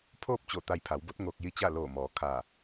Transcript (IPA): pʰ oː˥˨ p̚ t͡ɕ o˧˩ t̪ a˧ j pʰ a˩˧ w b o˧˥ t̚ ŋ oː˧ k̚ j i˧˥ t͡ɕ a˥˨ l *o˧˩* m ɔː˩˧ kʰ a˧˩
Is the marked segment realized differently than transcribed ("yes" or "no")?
yes